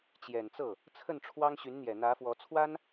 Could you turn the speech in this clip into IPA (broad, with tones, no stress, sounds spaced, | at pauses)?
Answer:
t͡ɕ j ɛ˨˩ n t͡s ɤ˥˩ | t͡sʰ ə˥˩ n ʈ͡ʂʰ w ɑ˥ ŋ ɕ y˧˥ n n̪ j ɛ˨˩ n̪ ä˧˥ f w ɔ˧˥ t͡sʰ w a˥ n